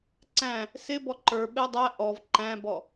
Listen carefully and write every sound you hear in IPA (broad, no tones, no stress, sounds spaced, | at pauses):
ǀ æ̃ | s ɪ b ɔ ǃ ə˞ ɓ ɛ dˤ æ ʔ ɔ v ǃ æ̃ b ɔ